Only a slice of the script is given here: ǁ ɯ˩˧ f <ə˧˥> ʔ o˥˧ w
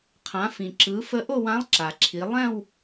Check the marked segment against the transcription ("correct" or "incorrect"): correct